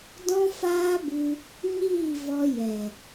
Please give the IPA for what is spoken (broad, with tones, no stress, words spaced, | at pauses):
dɔ̃˦faː˦bɨ˧ | ɲiː˦˨ vɔ˦ jɛ˨